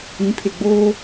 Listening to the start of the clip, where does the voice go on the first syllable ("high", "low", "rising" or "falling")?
rising